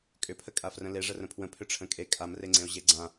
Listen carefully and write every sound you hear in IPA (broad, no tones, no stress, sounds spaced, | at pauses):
kʼ ʏ pʰ ə kʼ a f r ə̃ l e ʐ ə r ə̃ pʰ w ə̃ pʰ ʏ ʈ͡ʂʰ ə̃ kʼ e kʼ a m r e ŋ͡ǀ ẽ o̯ ʑ e ɡ͡ǀ ã